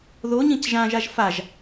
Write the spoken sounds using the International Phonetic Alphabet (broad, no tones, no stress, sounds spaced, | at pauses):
ð o ɲ ĩ c ʒ ã ʒ a ʒ f a ʒ